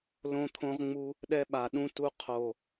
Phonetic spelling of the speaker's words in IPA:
l õ˧ t̪ʰ õ˧ ʁ ŋ͡m u˧ | ɗ ɛ˧ ɓ a˨˩ ɗ ũ˧ t u˧ qʰ o˨˩

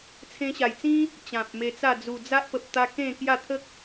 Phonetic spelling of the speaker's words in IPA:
t͡sʰ ẽ˧ ɕ a˨˩ j t͡s ĩ˦ | t͡ɕ ã˨ p̚ m e˧ t͡s a˥˧ d͡z u˨˩ d͡z a˦ ʔ p ə˨ p̚ t̪ a˧ k ẽ˥˧ k j a˥˧ t̪ʰ ə˦ k̚

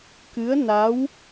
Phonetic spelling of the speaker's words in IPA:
k ɨ˧˥ ə̯ n a˧˥ w

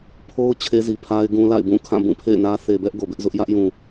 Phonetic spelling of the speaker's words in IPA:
pʰ o˦ ʊ̯ t͡ɕʰ e˦ z i˨ pʰ a˦ ɪ̯ ɡ ũ˦ l a̰˦˨ ɪ̯ b ũ˦˨ kʰ ã˦˨ b ũ˦˨ pʰ ḛ˦˨ ɪ̯ n ä˦ θ e˨ b ɛ˦ ʔ ɡ o˨ b ɪ˦ ʔ z ʊ˦ ʔ j ä˦ ʔ j ũ˨

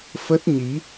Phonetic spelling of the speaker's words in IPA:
f ə˦˥ t̚ ɲ i˨˦

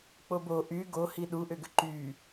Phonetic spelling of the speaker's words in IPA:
k͡p o b o ʔ y ɡ o h i ɗ u ʔ ʏ ɡ ʏ ǃ y

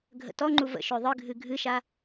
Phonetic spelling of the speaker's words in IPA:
ɡʱ ə̰ t ɔ ŋ͡ǃ u v ə̰ ʃ ø ðˤ ɨ ɡʱ ɨ ɡʱ ɨ ʃ a

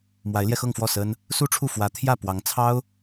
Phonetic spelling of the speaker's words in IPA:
m w a˧˥ ɪ̯ l j ɛ˧ x ɤ˥˧ ŋ f w ɔ˥˩ s ə˥ n | s u˥ ʈ͡ʂʰ u˥˩ f w ä˧˥ t̪ʰ j ä˥˩ p w ɑ˧˥ ŋ t͡sʰ ɑ˥ ʊ̯

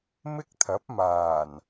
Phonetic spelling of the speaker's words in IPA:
m ɪ˥ k̚ t̪ʰ ɐ˨˥ p̚ m aː˨˩ n

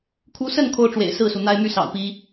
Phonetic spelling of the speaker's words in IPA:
kʰ u˨˦ s ə˥˨ n kʰ o˦ ʊ̯ ʈ͡ʂ w ḛ˨˩ ɪ̯ s ɹ̩˥˨ s u˩ n̪ a˦ ɪ̯ m y˦ s ɑ̰˨˩ ʊ̯ p i˨˦

